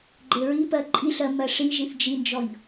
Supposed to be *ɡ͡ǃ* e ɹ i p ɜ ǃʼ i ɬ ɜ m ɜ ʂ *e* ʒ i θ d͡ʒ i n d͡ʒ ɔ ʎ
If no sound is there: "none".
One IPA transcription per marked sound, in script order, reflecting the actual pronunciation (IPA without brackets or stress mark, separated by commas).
ɡ͡ǃ, i